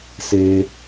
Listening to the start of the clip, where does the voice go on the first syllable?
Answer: low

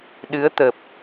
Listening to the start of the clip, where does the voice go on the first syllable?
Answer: rising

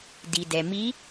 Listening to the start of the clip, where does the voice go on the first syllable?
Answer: low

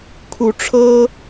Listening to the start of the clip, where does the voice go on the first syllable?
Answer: rising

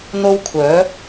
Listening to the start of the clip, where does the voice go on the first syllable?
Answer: high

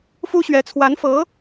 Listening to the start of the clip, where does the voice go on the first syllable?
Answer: high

